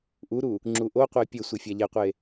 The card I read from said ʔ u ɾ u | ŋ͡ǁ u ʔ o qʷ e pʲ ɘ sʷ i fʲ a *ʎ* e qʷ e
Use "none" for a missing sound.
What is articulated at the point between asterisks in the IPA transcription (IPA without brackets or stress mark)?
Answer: ʎ